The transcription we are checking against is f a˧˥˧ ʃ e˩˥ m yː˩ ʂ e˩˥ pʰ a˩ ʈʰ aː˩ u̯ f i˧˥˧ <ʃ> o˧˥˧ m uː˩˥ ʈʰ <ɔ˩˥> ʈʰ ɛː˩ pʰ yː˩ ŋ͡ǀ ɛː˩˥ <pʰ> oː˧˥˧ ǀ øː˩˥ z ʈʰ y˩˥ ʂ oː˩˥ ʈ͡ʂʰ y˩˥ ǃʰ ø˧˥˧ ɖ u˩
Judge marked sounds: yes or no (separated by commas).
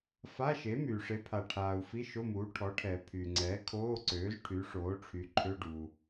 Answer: yes, yes, no